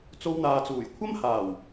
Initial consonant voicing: voiceless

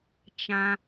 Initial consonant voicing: voiceless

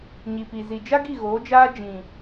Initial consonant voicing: voiced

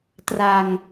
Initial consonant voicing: voiceless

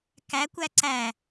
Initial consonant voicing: voiceless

